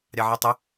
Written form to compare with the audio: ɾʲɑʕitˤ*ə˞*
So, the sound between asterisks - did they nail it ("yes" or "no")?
no